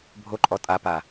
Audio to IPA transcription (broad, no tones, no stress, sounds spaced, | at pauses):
bʱ o ǃʼ ɔ tʼ a p a